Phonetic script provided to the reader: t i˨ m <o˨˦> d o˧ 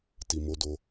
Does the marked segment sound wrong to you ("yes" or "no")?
no